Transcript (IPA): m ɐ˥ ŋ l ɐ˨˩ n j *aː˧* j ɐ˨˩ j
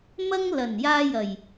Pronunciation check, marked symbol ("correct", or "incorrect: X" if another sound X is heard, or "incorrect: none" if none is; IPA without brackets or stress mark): correct